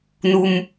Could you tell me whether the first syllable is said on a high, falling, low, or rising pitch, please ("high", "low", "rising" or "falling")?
low